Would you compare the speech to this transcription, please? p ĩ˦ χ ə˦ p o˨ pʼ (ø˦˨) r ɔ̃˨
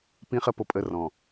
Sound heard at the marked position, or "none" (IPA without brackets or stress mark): ə˦˨